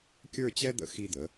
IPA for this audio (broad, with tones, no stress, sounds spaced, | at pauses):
kʲ ə˞˥˧ t͡ɕ ɛ˥ d̪ ə̰˧ x i˧ d̪ ə˩˧